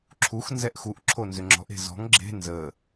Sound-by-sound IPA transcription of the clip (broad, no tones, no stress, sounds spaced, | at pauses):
ǁʰ u x n z ɛ ʔ x u ʔ ǁʰ o n z ʏ ŋ͡ǁ ɔ̤ ʔ e̤ z ɔ̤ ŋ ɡ͡ǁ e̤ n z ə